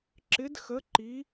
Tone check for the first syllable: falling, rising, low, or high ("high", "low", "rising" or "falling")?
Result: rising